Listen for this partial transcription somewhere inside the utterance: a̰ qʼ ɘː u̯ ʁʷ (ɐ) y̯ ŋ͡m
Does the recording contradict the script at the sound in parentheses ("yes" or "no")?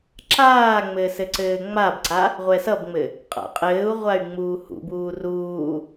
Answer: yes